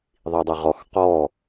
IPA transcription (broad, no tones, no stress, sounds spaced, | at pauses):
ðˤ i dˤ ɛ ʁ ɔ x q ɔ